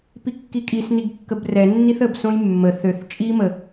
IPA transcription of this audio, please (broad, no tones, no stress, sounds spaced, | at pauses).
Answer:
p i kː i kʼ i s n i ɡ kː ə b r ɛ nː i θ ə b s õ j mː ə θ ø θ t͡ʃʼ i m ə